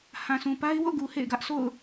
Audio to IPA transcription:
hã˨sũ˨pa˦ɪ̯ wo̰˦˨ɡu˨ hḛ˦˨ɪ̯ɡä˦ʔ sʰo̰˦˨ʊ̯

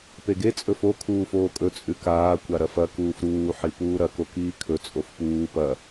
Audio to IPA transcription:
peɡe t͡sʼɵfo kʰuːfoːkʼɵ t͡sʼʉkaː kʷaɾɐfɐ kuːfɾuː ħipuːɾɐ kokiːkʰɵ t͡sʼofpuː pɐ

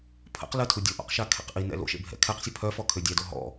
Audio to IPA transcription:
pʰə̰q lətʰu dʲoʔɔ̰qʃakʰḛq ʔinɛ̰ lo̰ʃḛbʱɛ̰ kʰɛqsʲə pʰœfɔkʰø dʲɛdo ɦɔ̰

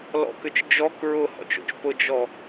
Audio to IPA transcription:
lɔ̰kʏt͡ʃ d͡ʒɔk ɹʊhɔ̰t͡ʃo̰t͡ʃ pʊd͡ʒɔ

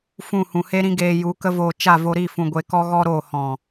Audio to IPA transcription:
fũ˦˨hũ˨he˦ɾĩ˦ ɡeː˧ju˨˦kə˦voː˧ t͡ʃa˦˨vo˧ɾi˦˨ fũ˧ɡʷe˧kɔ˦ ɣɔ˦ɾoː˦˨ hɔ̃˨

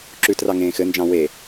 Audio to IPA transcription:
ǁʉtrɑ ŋẽːxɘnd͡ʒɑ̃ we

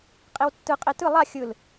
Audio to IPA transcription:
qʼewtːɯ qʼetɯ lˠa xʲɯl

